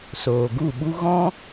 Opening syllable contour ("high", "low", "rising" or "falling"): low